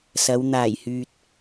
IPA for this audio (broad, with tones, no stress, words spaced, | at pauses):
sɐ˨˧w n̪aː˨˩j hyː˨t̚